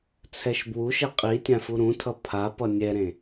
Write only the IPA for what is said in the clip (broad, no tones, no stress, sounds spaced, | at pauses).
t͡sʰ ɛ ʃ b w u ʃ ɛ qʼ i tʲ ã f u ɾ ũ tʰ ʌ pʰ a p ʌ nʲ ɛ ɾ ẽ